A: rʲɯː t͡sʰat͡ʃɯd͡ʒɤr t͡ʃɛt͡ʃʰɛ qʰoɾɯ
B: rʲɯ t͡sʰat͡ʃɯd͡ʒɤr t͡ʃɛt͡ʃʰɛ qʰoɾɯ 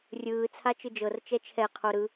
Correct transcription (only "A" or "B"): A